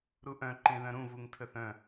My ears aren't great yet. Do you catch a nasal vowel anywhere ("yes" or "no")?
yes